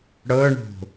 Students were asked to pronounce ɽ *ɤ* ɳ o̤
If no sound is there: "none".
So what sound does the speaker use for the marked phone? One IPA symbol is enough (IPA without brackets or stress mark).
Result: ɤ